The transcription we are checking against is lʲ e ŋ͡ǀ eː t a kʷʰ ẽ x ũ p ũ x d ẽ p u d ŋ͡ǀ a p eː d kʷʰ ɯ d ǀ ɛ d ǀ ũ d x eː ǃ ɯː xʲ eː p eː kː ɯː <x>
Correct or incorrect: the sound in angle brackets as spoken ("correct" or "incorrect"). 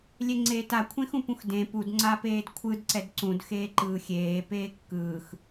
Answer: correct